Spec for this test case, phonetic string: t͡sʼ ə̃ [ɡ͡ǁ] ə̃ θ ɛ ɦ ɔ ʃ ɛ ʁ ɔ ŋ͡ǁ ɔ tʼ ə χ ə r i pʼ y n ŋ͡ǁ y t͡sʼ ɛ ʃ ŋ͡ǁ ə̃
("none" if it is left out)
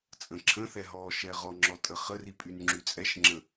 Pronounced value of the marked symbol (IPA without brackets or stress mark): ǁʰ